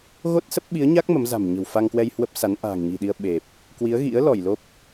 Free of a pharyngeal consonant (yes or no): yes